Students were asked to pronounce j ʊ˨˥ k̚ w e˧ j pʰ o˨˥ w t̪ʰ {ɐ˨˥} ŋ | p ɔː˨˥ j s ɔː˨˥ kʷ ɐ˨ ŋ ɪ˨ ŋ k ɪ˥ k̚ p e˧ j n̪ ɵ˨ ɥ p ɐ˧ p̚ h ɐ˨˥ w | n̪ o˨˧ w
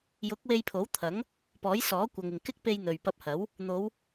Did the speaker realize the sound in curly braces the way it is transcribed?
yes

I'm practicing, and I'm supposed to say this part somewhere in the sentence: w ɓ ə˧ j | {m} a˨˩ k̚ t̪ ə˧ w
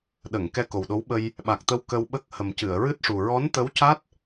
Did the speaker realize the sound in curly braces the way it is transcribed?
no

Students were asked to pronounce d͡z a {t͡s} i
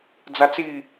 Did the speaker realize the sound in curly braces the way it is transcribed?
yes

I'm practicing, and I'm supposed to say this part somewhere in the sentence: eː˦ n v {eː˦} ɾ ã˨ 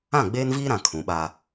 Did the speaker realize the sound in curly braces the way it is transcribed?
no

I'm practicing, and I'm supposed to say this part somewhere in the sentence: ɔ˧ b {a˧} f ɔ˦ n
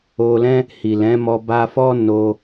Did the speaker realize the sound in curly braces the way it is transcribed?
yes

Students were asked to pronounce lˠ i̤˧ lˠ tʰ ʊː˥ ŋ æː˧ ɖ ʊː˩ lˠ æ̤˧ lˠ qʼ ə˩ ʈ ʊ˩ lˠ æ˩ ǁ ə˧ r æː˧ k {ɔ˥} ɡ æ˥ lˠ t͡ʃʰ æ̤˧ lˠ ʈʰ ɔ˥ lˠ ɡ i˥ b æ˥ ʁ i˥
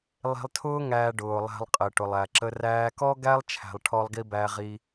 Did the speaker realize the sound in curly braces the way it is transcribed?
yes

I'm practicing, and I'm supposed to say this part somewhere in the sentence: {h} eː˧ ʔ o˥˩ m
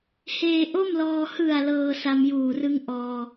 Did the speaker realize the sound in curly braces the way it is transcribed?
yes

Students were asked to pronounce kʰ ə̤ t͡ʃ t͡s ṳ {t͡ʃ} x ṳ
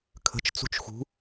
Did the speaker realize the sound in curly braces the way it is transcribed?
yes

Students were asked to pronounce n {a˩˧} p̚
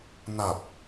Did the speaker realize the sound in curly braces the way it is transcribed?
no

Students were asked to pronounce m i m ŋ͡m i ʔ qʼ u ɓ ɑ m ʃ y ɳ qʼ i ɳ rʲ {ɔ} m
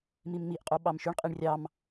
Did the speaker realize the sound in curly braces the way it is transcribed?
no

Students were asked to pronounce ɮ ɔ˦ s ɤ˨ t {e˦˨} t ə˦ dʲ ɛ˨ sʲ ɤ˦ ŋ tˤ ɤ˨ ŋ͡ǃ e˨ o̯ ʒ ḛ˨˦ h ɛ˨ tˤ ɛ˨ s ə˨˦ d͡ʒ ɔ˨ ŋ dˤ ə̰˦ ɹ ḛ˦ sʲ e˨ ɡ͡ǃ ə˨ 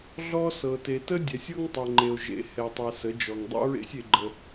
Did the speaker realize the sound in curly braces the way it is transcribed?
no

